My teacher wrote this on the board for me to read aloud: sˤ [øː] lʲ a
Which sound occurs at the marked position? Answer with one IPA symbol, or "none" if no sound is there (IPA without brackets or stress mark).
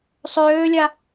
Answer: øː